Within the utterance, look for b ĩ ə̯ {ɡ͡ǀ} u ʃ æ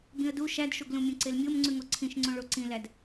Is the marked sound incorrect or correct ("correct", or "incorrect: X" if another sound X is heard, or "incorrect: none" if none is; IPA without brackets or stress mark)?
incorrect: d